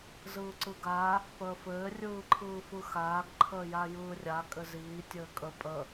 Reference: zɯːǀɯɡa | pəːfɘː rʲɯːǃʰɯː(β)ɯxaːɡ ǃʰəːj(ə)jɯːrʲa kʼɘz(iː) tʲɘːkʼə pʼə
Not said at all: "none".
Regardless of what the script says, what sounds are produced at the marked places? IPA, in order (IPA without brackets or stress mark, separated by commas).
f, a, iː